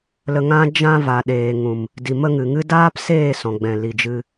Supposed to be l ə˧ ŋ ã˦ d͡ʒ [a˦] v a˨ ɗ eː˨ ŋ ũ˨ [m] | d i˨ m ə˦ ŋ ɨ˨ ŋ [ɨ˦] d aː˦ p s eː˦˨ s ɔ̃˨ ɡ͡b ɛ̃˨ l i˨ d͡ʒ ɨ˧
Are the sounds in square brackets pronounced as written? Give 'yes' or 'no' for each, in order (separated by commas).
no, yes, yes